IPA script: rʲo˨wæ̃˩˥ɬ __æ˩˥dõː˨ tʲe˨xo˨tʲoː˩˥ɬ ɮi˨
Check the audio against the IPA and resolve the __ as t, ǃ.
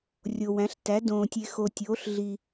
t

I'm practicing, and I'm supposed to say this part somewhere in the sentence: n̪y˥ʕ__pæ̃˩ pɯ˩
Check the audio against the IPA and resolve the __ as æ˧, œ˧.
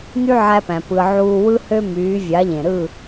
æ˧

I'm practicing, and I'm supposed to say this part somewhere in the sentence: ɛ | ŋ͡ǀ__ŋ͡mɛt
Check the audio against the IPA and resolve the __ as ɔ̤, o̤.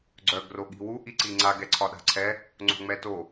o̤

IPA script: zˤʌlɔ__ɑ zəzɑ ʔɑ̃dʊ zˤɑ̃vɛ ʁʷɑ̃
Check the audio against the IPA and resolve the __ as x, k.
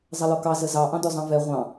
k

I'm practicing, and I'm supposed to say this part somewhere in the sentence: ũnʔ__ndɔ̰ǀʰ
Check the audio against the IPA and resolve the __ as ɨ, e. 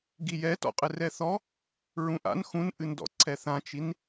ɨ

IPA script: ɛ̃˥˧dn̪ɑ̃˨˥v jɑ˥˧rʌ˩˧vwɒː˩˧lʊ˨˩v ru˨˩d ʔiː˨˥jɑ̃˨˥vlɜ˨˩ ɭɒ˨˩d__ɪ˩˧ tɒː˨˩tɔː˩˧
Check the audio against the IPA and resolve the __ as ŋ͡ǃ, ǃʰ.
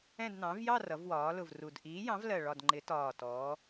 ŋ͡ǃ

